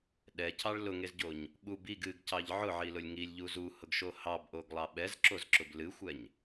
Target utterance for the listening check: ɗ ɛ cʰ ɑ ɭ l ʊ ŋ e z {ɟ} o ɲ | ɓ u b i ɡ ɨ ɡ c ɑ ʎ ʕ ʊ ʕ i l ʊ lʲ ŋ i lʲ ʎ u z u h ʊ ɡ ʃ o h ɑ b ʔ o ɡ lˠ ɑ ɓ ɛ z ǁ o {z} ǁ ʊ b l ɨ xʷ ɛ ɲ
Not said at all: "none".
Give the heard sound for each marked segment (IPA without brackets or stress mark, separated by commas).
ɟ, z